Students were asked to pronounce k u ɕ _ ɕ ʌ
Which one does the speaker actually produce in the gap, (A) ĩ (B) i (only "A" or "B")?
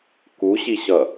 B